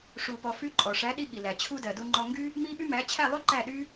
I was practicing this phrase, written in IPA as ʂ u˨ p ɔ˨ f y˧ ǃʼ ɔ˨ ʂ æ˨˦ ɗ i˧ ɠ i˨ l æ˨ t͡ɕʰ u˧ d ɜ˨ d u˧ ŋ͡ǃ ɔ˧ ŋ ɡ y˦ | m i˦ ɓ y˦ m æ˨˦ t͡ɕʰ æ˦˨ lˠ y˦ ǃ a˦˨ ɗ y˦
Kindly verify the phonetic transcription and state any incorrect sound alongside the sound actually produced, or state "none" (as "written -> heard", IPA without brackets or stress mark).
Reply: a˦˨ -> æ˦˨